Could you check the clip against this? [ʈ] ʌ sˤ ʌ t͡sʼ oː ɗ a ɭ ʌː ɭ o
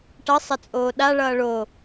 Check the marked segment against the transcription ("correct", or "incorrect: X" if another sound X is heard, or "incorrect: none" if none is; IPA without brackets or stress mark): correct